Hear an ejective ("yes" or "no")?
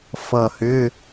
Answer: no